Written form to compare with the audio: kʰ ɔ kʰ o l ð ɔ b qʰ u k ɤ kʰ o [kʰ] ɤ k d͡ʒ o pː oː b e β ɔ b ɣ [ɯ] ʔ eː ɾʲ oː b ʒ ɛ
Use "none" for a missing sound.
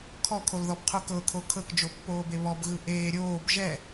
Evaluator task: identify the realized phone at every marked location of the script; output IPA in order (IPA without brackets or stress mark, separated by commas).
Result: kʰ, ɯ